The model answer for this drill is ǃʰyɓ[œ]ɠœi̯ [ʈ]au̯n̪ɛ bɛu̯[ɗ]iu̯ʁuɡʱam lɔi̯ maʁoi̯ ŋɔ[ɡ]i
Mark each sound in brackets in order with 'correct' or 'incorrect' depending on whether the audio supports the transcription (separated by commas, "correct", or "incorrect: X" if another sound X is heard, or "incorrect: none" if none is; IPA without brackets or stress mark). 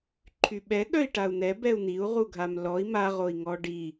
incorrect: ɛ, correct, incorrect: n̪, incorrect: ɖ